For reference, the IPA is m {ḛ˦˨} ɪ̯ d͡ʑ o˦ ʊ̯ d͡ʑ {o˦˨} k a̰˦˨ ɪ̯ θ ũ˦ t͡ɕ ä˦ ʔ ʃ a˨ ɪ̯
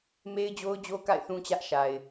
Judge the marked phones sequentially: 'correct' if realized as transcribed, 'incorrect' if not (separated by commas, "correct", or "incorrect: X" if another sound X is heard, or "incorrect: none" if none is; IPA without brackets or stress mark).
incorrect: e˦, incorrect: o˦